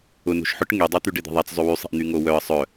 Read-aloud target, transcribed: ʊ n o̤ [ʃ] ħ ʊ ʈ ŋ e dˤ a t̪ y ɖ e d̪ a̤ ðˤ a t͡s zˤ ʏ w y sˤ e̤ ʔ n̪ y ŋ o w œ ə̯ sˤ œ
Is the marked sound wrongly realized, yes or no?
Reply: no